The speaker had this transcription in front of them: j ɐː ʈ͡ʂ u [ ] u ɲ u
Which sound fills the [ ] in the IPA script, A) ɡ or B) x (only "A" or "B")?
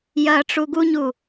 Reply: A